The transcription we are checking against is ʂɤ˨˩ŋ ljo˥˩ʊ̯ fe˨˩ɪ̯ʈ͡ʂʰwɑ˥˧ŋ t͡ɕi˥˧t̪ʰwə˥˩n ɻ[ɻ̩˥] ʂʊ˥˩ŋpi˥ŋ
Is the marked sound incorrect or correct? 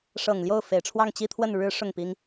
incorrect